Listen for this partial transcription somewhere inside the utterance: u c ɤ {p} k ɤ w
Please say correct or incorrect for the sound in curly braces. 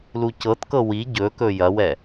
incorrect